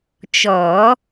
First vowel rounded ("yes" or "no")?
yes